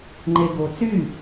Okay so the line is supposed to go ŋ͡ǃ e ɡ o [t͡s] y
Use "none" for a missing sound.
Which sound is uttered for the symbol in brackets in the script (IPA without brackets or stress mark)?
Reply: t͡s